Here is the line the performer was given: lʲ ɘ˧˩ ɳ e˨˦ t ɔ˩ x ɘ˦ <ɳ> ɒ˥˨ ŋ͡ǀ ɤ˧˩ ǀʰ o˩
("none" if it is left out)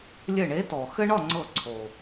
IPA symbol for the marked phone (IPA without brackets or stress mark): ɳ